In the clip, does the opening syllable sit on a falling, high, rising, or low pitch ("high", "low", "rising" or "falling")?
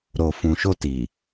low